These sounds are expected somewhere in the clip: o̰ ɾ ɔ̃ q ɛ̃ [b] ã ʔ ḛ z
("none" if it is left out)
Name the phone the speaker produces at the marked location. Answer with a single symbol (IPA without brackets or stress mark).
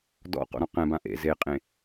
b